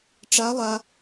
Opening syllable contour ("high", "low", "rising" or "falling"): rising